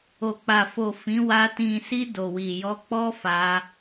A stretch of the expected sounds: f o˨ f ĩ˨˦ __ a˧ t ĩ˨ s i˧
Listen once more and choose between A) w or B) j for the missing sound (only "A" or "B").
A